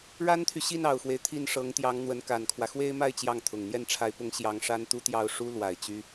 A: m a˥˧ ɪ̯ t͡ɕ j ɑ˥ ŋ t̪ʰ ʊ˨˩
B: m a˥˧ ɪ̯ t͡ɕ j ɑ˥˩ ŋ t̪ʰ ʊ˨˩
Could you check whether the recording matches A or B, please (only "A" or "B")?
B